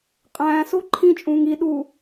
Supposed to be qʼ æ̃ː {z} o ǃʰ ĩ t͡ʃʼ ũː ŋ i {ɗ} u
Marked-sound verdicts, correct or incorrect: incorrect: s, correct

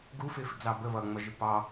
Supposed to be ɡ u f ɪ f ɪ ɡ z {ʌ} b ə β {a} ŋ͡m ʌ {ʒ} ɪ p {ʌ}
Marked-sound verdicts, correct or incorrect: incorrect: ɑ, incorrect: ʌ, correct, incorrect: ɑ

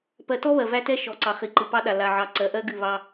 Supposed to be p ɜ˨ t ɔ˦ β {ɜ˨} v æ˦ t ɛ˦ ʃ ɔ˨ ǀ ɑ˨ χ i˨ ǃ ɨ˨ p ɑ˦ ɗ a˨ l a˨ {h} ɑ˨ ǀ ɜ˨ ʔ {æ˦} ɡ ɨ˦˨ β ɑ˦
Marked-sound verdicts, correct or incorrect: correct, incorrect: ʕ, incorrect: ɜ˦

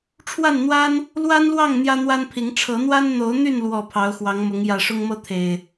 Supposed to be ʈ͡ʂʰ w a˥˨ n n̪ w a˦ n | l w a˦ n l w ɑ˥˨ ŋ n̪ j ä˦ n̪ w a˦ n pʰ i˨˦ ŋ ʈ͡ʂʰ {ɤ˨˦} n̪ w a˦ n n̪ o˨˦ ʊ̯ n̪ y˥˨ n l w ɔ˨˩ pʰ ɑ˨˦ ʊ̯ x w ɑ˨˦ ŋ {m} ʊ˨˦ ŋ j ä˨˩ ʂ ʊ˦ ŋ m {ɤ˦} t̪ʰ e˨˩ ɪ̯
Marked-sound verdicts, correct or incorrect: correct, correct, correct

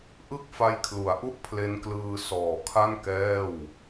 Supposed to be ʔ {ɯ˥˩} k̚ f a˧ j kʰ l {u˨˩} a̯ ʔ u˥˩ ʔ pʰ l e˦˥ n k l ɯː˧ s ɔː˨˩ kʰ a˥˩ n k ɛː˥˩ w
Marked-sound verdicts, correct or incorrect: correct, incorrect: u˩˦

